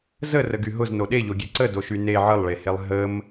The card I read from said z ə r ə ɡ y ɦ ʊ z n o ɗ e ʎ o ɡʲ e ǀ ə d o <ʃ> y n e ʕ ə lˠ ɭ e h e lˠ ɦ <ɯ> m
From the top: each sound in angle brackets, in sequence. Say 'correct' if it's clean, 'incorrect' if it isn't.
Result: correct, incorrect

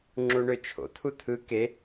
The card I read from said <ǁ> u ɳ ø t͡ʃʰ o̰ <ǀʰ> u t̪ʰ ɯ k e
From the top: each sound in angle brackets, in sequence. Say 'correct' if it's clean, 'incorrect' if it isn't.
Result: incorrect, incorrect

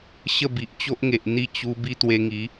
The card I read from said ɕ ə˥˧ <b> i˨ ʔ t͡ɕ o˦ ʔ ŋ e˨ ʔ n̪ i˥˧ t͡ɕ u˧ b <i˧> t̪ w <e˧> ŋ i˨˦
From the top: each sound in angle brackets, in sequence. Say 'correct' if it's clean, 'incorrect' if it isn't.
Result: correct, incorrect, correct

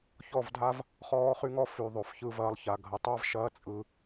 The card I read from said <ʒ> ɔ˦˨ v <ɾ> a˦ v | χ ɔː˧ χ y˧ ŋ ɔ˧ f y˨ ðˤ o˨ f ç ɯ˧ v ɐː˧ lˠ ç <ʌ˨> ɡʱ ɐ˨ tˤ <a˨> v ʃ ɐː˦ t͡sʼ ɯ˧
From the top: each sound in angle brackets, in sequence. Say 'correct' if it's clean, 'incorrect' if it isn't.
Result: incorrect, incorrect, incorrect, incorrect

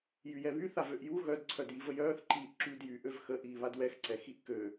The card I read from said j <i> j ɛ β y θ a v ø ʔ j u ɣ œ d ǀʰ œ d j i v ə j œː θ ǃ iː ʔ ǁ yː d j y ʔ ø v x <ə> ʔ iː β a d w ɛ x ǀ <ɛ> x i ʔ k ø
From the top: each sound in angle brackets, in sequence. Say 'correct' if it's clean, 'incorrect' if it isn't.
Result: incorrect, correct, correct

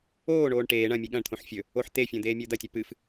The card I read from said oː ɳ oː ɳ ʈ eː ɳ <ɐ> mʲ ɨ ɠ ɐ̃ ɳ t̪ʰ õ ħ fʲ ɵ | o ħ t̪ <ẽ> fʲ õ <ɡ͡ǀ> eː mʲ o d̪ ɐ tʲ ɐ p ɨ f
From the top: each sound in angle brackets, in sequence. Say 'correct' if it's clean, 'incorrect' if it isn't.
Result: incorrect, incorrect, incorrect

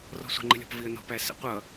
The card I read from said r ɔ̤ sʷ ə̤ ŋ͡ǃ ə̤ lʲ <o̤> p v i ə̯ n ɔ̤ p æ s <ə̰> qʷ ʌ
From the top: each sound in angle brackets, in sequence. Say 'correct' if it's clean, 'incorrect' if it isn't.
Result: incorrect, correct

